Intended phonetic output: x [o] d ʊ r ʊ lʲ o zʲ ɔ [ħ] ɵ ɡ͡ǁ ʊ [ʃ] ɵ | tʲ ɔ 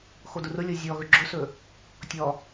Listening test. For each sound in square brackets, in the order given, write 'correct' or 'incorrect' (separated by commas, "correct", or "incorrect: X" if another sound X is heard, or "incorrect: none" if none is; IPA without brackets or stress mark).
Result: correct, incorrect: ɣ, incorrect: s